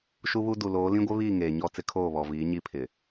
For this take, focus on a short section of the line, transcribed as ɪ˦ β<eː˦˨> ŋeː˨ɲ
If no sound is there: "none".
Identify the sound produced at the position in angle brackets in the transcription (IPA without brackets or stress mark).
iː˦˨